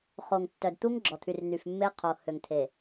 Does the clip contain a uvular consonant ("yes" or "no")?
yes